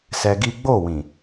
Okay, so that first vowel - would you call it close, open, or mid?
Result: mid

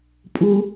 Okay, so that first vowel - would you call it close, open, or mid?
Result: close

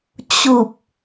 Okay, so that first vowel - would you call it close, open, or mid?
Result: close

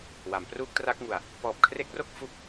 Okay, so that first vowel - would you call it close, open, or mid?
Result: open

